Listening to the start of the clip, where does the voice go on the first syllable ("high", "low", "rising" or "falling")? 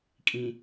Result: low